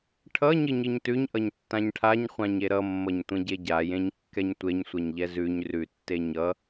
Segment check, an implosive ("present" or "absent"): absent